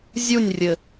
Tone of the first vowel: falling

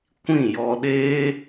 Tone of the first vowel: falling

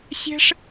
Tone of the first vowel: high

